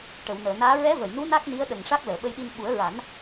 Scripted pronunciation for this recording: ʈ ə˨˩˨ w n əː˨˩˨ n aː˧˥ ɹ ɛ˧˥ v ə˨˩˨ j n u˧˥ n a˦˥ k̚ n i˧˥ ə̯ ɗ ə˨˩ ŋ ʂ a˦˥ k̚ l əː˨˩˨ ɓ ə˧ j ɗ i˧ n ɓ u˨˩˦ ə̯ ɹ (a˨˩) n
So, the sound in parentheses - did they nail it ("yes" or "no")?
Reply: no